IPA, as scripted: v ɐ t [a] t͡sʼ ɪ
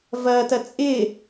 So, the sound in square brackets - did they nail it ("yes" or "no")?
no